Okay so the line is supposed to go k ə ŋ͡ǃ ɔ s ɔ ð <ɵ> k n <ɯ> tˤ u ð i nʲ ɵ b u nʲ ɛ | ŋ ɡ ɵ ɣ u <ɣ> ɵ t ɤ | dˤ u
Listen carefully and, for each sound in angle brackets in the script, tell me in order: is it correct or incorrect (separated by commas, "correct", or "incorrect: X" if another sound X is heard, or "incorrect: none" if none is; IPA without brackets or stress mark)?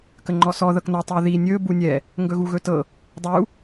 incorrect: ɤ, incorrect: ɤ, correct